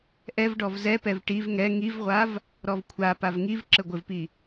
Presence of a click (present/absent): present